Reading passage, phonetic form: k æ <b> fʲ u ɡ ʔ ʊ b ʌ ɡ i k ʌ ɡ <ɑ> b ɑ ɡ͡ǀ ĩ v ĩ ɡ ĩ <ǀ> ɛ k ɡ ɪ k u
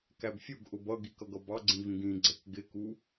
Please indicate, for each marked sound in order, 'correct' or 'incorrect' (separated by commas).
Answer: correct, incorrect, incorrect